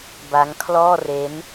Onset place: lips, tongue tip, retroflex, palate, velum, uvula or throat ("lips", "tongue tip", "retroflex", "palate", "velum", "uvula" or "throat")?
lips